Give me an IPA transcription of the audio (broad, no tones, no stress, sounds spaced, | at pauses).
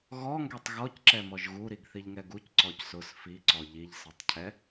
ɣ ɔ ŋ ɡ ɛ tˤ ɣ ɔ c ǁ ɛ m ɔ ʒ ɣ u ɾ i ɡ θ i ʎ ŋ ɛ ɡ u c ǀ ɔ c s ʊ s f i ǀ ɔ ʎ i ʎ s ɛ tˤ cʰ ɛ